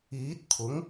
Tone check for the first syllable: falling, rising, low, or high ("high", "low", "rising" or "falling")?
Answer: rising